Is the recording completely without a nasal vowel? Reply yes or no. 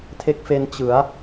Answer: yes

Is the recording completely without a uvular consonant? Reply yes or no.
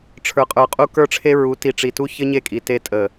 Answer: no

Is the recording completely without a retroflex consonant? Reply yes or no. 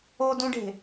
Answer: no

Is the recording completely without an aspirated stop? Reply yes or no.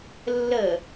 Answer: yes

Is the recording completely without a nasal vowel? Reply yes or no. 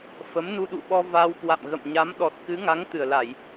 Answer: yes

